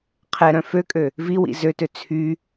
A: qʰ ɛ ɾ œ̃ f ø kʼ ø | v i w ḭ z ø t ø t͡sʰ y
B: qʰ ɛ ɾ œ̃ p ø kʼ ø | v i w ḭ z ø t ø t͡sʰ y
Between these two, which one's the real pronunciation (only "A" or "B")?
A